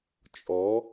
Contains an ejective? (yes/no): yes